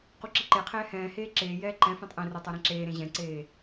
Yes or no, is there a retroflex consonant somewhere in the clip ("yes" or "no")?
no